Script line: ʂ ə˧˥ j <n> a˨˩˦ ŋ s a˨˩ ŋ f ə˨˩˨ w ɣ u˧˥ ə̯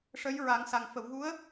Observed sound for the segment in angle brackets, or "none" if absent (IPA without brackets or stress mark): ɹ